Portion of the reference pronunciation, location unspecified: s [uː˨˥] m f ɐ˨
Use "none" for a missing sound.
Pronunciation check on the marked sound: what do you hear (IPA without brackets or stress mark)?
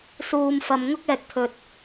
uː˨